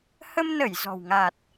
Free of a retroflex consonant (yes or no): yes